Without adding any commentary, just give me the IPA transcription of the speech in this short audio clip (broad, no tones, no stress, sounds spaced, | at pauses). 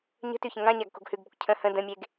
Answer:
ɲ ə̤ t ʉ ç ə̃ ŋ ã ɲ a ɡ k o̤ ɡ h ʉ ɡ b ə kʷ cʰ ə̃ h ə̃ d ə̃ mʲ e ɡ